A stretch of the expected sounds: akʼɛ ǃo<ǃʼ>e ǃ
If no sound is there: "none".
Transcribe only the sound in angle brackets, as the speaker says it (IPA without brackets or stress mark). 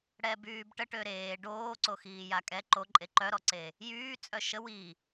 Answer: ǃʼ